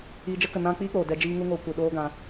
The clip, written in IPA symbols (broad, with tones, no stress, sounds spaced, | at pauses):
iː˨ d͡ʒ ə˧ k ə˨ n ã˧ k͡p iː˦ k͡p oː˨ d ɛ˨ d͡ʒ iː˧ ŋ u˧ ŋ oː˧ kʷ ɨ˨ ɗ oː˦ ɡ ã˧